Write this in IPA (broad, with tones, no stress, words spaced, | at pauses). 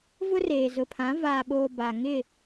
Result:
vʊ˦reː˨zʊ˨pʰã˨˦ vaː˨ɓoː˨ ba˨ ŋɪ˦˨